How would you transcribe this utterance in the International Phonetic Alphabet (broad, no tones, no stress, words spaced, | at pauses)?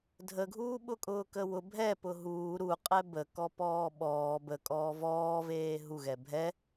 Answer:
dʱəɡʱuːɓʊkʼʊː kəwʊ bʱɛ pʊɦuː ɾuqʼɛ bə kɔpɔːɓɔː bəkʼɔː vɔːveː ɦuɣɛ bʱɛ